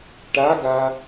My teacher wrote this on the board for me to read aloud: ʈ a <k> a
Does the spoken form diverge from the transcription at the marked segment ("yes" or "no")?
yes